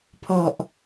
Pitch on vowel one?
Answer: low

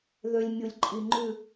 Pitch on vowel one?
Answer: low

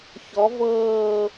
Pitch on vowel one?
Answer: rising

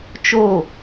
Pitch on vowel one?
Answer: falling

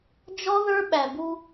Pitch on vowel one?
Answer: high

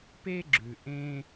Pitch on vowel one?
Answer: high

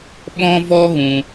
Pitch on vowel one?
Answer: high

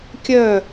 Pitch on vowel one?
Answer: falling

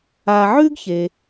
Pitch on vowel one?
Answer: low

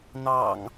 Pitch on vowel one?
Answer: low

